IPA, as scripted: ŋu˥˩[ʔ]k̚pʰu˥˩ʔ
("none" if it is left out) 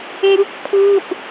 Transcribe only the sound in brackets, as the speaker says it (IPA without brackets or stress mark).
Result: none